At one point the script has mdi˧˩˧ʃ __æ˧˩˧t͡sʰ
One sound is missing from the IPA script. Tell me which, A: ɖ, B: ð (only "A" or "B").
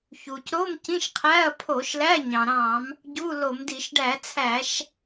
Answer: A